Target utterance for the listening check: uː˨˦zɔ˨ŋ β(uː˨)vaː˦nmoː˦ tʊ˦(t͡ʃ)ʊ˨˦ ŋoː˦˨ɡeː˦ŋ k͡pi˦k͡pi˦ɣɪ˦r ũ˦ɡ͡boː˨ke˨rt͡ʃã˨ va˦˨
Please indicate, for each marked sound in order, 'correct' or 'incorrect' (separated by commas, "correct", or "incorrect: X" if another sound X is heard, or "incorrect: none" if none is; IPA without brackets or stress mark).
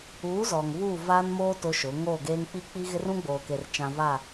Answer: incorrect: uː˦˨, incorrect: ʃ